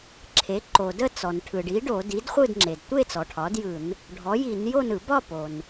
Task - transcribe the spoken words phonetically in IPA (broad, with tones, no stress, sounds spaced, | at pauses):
ǁʰ e˩˥ ǃ o˩ d ə˥˨ t͡s ɔ˩ n ʈʰ ɯ˩ ɖ i˩˥ ɖ o˧˩˧ d i˩˥ d χʷ ɯ˥˨ d ŋ͡ǁ e˩ d tʷ e˥˨ t͡s ɔ˩ ʈʰ ɒ˩˥ d j ɯ˧˩˧ n | ɖʱ ɔ˩˥ j i˧˩˧ n j o˥˨ n ɯ˧˩˧ b ɒ˥˨ p o˩ n